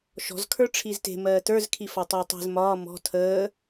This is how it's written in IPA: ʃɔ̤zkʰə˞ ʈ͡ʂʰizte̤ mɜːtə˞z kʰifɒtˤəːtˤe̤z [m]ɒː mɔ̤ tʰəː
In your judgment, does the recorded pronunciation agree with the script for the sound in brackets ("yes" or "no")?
yes